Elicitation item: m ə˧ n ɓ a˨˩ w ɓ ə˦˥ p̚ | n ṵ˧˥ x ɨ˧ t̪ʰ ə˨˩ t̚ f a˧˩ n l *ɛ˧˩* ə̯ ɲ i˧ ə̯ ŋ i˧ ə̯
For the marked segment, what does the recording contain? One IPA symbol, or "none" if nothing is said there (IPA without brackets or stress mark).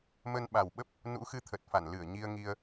ɨ˧˩